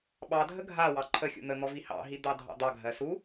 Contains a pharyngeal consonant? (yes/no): no